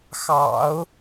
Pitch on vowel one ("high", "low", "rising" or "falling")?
low